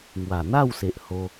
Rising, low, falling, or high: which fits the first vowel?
low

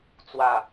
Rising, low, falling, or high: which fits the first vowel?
low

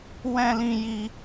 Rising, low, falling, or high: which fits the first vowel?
high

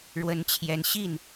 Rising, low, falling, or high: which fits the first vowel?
rising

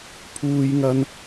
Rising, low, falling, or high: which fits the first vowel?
high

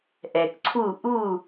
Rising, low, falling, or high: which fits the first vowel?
low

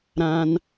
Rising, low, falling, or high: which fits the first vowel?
high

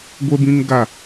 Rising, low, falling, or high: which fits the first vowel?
high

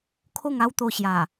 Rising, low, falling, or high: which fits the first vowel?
falling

